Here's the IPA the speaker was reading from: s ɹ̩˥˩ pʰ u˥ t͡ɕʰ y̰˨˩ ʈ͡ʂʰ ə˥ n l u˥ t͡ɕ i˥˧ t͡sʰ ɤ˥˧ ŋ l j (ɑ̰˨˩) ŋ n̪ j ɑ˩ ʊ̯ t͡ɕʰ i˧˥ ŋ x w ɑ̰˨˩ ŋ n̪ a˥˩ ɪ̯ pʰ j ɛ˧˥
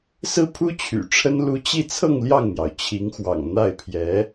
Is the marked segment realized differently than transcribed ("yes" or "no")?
yes